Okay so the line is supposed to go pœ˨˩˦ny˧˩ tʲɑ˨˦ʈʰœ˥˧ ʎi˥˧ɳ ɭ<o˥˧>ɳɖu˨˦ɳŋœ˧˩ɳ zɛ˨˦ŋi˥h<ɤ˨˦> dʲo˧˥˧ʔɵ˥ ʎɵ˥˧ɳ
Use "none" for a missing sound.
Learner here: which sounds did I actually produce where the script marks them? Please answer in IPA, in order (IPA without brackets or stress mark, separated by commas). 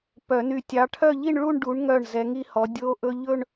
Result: u˥˧, ɔ˨˦